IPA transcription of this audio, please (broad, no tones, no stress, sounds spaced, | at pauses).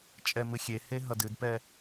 t͡ʃʼ ɛ m ɨ xʲ e h e ɦ ʌ d ɨ d p ɛ